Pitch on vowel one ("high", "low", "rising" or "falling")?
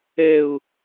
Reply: high